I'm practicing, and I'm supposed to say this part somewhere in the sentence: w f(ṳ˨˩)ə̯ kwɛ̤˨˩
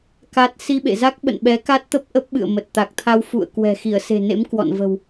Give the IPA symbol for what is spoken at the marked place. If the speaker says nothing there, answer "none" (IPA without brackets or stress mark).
ṵ˧˨